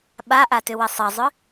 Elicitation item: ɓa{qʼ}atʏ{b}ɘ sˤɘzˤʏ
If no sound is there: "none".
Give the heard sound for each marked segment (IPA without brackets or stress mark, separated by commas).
ʔ, w